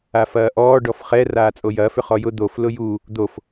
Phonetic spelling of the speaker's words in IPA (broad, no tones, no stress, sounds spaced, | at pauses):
a f ɐː ʔ ɔː ɖ ɔ f χ ɛ r aː t͡sʼ o j ɐː f ʏ χ ɔ j ʊ d̪ o f l ʊ j u | d̪ o f